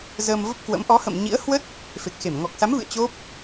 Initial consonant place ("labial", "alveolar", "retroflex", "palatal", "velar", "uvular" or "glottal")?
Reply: alveolar